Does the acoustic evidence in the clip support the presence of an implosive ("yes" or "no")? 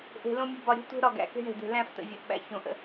yes